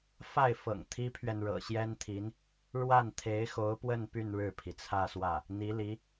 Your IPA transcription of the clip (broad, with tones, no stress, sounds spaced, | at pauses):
f a˥˩ ɪ̯ f ɤ̰˨˩ ŋ t̪ʰ i˥ pʰ ɥ ɛ˨ n ɻ ɤ̰˨˩ ɕ j ɛ˥ n t̪ʰ i˧˥ n | ɻ w a˥˩ n t̪ʰ e˧˥ ɪ̯ x o˧˥ ʊ̯ p w ə˥˧ n p y˥˧ n ɻ ɻ̩˥˩ pʰ i˩ t͡sʰ ä˥˧ s w ä˥˩ | n̪ i˧˥ l i˧˥